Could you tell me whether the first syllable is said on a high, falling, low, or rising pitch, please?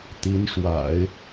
rising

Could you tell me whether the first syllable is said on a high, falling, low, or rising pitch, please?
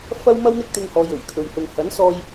high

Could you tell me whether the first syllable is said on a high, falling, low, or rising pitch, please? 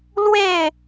falling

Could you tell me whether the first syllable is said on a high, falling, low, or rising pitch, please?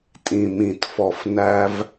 low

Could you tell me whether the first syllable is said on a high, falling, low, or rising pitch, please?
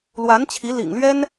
rising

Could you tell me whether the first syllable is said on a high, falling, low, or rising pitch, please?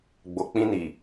low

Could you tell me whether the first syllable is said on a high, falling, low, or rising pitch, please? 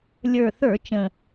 low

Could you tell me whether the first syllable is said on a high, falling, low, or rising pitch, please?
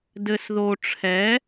low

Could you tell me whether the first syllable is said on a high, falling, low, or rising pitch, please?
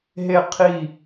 falling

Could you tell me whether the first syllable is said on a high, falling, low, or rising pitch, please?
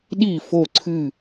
falling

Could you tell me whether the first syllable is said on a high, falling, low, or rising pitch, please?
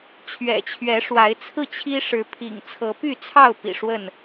low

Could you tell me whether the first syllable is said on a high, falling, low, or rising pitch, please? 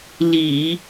low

